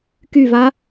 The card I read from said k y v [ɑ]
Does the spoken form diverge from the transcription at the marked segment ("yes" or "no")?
yes